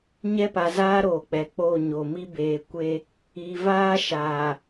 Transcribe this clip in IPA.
ɲ ɛ˦ p a˨ z aː˦ ɾ oː˨ k͡p ɛ˨ k͡p oː˦˨ ɲ o˨ m i˦ b eː˨ kʷ e˦ | i˨ v aː˦ ʃ aː˨

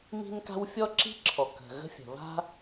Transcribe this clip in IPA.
m i̤˥ n k a̤˥ w fʲ ɔ˥ ǁ i̤˥ ǁʰ ɔ˩ k ə̤˩ ɣ ə̤˥ fʲ ə̤˩ β a̤˥

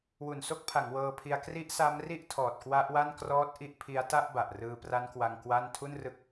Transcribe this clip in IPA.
w u˨˩ n s o˥˩ k̚ pʰ a˩˦ ŋ w ɤː˧ pʰ i˧ a̯ k r i˦˥ ʔ s a˦˥ m r i˥˩ ʔ tʰ ɔː˨˩ t̚ k w a˦˥ ʔ w a˥˩ n k r ɔː˦˥ t̚ ʔ i˥˩ ʔ pʰ i˦˥ a̯ t a˥˩ ʔ b a˨˩ ʔ r ɯː˧ p r a˦˥ n k w a˧ ŋ k w a˥˩ n tʰ u˥˩ n r ɯ˦˥ k̚

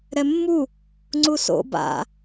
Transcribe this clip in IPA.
ɾ ɛ mː u | ŋ͡ǀ u s o̰ b a̰

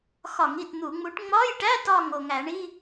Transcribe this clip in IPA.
x ɒ˧˩˧ ŋ i˥˩ t n̪ u˧˩˧ ŋ͡m u˨˥ ʈ ŋ͡m ɒ˧˥˧ j ʈ æ˧˥˧ t ɒ˧˩ ŋ o˧˩ ŋ æ˧˩˧ ɳ i˧˥˧

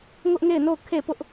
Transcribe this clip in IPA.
ŋ ʊ˦ ʔ ŋ e˦˨ ɪ̯ n o˦˨ ʊ̯ kʰ e˦˨ p ʊ˦ ʔ

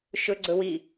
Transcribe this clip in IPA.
ʃ ɵ ɡ͡ǀ ɵ w i

